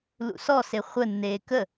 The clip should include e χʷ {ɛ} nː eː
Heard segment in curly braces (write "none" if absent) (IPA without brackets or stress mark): ə